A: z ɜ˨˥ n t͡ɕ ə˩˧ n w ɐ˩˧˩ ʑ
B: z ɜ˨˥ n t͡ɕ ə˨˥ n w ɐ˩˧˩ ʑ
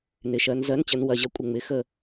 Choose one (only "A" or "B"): A